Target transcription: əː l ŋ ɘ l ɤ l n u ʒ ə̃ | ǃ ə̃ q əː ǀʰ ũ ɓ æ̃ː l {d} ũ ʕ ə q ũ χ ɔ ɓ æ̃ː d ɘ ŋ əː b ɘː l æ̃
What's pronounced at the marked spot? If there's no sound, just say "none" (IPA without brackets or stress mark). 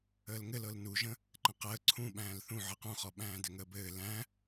θ